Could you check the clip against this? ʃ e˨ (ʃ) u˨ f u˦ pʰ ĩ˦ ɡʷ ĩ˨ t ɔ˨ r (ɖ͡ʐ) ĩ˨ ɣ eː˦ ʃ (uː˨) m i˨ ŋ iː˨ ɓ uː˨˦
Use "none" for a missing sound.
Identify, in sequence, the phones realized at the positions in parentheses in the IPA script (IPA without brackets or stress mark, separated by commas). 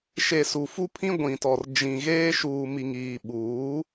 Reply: s, d͡ʒ, uː˨